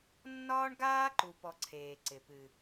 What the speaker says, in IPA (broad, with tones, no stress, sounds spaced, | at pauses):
nː ɒː˦ ɳ ɡ aː˦ ǃ u˧ p ɔ˧ ǀʰ eː˨ ǀ ɪ˨ p ɨ˨